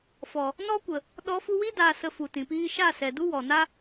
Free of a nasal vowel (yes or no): no